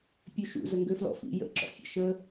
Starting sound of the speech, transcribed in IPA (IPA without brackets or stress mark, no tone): pʲ